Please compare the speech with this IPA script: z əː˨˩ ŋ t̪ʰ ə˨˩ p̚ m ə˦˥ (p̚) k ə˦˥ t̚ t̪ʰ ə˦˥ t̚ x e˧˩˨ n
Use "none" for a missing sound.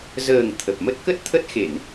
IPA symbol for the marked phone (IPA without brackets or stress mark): t̚